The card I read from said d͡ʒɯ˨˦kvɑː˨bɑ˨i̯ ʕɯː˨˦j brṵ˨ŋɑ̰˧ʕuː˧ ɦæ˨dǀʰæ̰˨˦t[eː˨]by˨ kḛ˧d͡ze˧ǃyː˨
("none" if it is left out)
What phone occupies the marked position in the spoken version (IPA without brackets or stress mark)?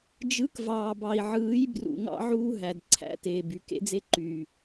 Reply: eː˨